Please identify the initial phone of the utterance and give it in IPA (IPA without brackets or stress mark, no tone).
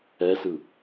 ɛ